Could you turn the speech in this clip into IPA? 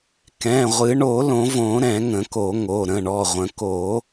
k ɛ̃˩˧˩ ʁʷ ɨ˨˩˦ ɳ o˨˩˦ l õ˨˩˦ v õ˨˩˦ ɾ ɛ̃˨˩˦ ŋ ə̃˨˩˦ k o˨˩˦ ŋ o˩˧˩ ɾ ə̃˩˧˩ ɳ ɔ˩˧˩ ʁʷ ə̃˨˩˦ k o˨˩˦

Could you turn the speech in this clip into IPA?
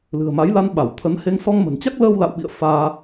l ɨ̤˨˩ ə̯ m a˨˦ j l a˧ n ɓ a˧˩ w t̪ʰ ə˨˦ n h e˧ ŋ s ɔ˧ ŋ m ə̤˨˩ n t͡ɕ a˦˥ k̚ l əː˧ w l a̰˧˨ w ɓ ḭ˧˨ ə̯ f aː˧

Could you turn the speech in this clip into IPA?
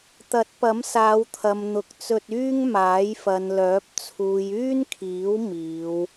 t̪ ɐ˨˥ t̚ p ɐ˨˥ m s aː˨˧ w t̪ʰ ɐ˨ m n̪ ʊ˨ k̚ t͡s ɵ˧ t̚ yː˥ ŋ m aː˨˥ j f ɐ˨ n l œː˨˥ p̚ t͡sʰ uː˨ j yː˥ n kʰ iː˨˥ w m iː˨˧ w

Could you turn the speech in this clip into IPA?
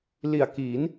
l i˨˩ a̯ k i˩˦ n

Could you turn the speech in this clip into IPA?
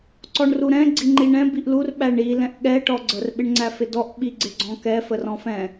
ǀ ɔ ɳ r u ɾ ɛ̃ ɡ͡ǀ i ŋ͡ǃ i ɳ ɛ̃ b i ʔ l u r ɓ æ ɳ i l ɛ̃ ʔ ɠ ɛ ʈ ɔ ɡ͡ǀ ə r ɓ ɪ ɳ ŋ͡ǀ æ f ɪ d ɔ ʔ ɓ i ɡ͡ǀ ɪ ɡ͡ǀ ɔ̃ k ɛ f ə r ɔ̃ f ɛ̃

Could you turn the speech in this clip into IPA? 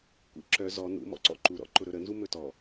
kʷ ḭ ǁ œ z ɔ n ṵ m ɔ̰ ǀ ɔ̰ ǃ u ɾ ɔ̰ ǃ ʊ ɾ ɵ ɾ ə n z u m ɵ t ɔ

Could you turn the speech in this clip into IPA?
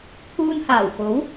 t̪ʰ uː˧ n h aː˨˩ w k o˨˥ w

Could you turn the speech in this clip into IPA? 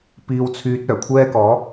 p iː˧ w t͡sʰ yː˧ t̚ œː˨˩ kʷʰ ɛː˧ k ɔː˨˧

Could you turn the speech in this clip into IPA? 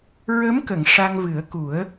ɹ ə˧˥ m k ə˨˩˨ ŋ ʂ a˧ ŋ v ɨ˨˩˦ ə̯ k u˨˩˦ ə̯

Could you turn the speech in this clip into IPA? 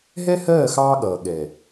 ɦ ɛ˦ h ɜː˦˨ x ɑː˦ ɠ ʌː˨ ɠ ɛ˨

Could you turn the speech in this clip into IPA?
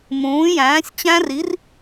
m ũː˩˥ j æ̃ː˩˥ sʲ t͡ɕ æ̃˦˥ r i˩˥ r

